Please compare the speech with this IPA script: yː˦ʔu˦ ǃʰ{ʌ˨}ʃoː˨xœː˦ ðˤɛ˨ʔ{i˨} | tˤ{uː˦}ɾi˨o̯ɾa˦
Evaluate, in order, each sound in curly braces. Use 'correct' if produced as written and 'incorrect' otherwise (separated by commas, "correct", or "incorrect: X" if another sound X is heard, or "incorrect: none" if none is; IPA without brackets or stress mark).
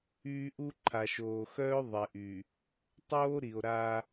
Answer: incorrect: a˨, incorrect: y˨, incorrect: oː˦